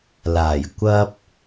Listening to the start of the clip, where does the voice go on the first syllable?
low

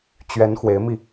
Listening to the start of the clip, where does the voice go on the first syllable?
rising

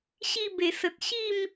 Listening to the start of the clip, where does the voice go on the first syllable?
falling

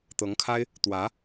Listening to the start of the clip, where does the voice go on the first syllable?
rising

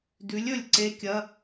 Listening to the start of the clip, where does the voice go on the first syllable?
rising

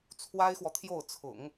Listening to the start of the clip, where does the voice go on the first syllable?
high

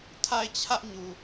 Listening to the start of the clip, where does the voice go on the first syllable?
falling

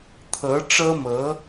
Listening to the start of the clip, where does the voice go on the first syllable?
rising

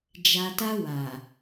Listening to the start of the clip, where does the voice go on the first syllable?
low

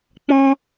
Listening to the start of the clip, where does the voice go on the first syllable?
high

